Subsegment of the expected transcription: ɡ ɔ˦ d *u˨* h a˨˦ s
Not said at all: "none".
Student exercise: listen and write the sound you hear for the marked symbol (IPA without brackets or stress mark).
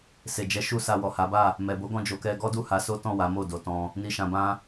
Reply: u˦˨